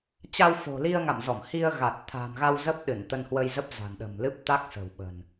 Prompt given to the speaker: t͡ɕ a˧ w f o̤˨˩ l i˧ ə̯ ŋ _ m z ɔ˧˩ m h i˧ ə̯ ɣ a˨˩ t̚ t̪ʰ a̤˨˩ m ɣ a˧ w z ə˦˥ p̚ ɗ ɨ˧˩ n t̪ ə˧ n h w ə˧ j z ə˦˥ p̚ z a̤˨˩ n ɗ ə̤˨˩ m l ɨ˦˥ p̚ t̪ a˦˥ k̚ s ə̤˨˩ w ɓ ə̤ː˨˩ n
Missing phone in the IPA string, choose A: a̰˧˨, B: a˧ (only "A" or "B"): A